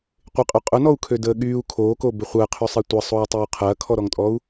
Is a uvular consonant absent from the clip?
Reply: no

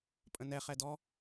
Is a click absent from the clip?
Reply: yes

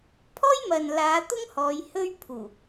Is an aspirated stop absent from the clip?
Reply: no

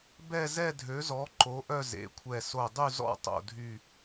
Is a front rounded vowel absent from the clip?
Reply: no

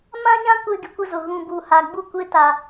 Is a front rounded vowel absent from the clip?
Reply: yes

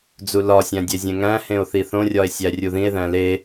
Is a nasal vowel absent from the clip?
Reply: no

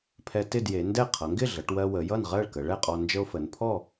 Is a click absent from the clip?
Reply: yes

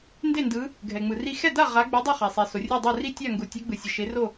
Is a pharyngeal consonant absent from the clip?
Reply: yes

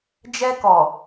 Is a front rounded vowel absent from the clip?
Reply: yes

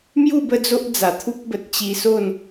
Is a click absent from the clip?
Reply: yes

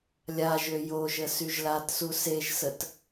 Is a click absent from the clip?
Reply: yes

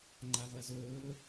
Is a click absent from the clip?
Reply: no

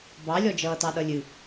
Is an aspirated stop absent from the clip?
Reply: yes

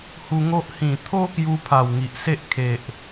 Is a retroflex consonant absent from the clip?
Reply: yes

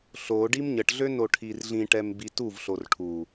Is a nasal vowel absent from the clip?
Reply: no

